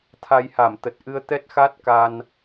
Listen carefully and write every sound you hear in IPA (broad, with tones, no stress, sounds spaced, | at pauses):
t̪ʰ a˧ j h a˧˩ m t̪ ə˨˩ t̚ ʔ ɨ˧ ə̯ t̪ ɛ˦˥ t̚ x a˦˥ t̚ k a˧ n